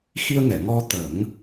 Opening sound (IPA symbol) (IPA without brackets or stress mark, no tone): x